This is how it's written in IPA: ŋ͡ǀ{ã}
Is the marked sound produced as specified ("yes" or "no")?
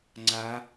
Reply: no